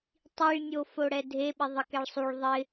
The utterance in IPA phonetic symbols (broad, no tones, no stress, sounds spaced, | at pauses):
tˤ i ɭ nʲ o f o ɽ ɛ dʱ e ɓ ɪ ðˤ i k ɛ ɭ sˤ u ɭ ðˤ ɪ